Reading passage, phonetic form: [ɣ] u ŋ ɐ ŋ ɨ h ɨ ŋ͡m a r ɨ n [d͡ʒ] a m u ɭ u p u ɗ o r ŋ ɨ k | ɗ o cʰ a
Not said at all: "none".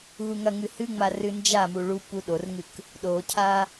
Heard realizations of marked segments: ɣ, d͡ʒ

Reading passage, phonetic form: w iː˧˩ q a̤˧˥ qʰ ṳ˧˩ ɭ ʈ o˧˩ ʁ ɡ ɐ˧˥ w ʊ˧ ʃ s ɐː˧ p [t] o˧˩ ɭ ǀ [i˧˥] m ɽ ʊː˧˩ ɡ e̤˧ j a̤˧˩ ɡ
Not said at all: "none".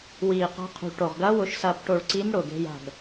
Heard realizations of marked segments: ʈ, i˧˥

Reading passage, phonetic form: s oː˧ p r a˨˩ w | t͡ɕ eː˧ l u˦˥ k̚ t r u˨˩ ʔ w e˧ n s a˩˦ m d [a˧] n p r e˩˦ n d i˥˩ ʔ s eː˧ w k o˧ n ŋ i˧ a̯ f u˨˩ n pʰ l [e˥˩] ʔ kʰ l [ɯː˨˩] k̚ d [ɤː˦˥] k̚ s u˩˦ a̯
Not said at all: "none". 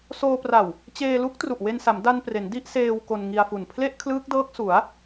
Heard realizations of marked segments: a˧, e˥˩, ɯː˦˥, ɤː˦˥

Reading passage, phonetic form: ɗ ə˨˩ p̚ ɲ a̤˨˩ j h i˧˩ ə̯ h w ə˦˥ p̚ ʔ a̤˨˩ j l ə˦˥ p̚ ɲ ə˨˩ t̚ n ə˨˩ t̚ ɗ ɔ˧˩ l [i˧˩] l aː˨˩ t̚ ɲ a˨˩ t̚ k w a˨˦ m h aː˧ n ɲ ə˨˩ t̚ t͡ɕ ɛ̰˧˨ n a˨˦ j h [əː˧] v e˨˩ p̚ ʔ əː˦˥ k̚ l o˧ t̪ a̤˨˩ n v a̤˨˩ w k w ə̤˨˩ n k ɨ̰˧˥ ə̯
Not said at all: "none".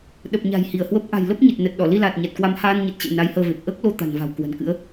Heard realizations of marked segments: i˧, əː˧

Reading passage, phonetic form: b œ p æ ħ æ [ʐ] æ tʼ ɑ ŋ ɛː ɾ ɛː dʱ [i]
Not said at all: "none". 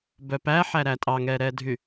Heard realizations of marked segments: ɾ, y

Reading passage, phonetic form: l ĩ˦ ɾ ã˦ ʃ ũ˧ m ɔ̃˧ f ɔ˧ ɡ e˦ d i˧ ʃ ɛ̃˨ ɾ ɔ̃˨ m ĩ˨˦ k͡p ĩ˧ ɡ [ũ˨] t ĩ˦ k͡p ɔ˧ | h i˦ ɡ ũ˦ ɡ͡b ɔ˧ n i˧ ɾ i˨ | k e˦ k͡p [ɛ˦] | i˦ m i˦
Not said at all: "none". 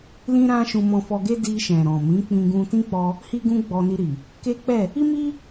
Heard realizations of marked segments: ũ˧, ɛ˦˨

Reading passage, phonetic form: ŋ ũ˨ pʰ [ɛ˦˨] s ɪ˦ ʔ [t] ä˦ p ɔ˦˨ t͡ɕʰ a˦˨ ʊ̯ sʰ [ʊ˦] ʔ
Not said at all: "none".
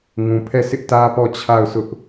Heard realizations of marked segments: ɛ˦˨, t, ʊ˦

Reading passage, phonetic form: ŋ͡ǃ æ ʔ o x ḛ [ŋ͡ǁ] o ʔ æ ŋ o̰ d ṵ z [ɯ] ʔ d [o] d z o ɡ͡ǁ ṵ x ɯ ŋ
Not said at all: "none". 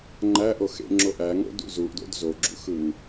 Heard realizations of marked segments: ŋ͡ǁ, u, o̰

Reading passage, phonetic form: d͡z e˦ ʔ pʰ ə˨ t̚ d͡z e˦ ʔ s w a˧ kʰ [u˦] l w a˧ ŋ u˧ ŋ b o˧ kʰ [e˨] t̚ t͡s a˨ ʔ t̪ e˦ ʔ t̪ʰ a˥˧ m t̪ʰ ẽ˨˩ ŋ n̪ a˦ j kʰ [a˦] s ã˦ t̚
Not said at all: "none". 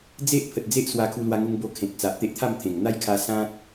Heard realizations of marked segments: u˧, ẽ˨, a˧

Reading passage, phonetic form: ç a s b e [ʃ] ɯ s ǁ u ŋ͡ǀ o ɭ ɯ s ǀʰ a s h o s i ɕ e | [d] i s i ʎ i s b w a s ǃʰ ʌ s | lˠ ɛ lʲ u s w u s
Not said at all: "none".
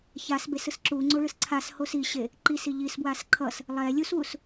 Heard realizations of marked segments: s, ǃ

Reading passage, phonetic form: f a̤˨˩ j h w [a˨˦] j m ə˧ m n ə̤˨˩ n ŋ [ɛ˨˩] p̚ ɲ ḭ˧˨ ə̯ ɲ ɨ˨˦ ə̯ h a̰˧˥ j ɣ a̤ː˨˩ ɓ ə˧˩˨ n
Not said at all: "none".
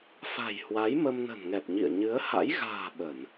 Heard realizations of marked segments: a˨˦, ɛ˨˩

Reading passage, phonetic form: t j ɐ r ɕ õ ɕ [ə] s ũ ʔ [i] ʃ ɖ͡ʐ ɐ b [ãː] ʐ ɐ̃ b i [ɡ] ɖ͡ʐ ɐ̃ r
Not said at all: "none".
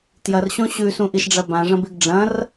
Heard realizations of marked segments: ʉ, i, ã, ɡ

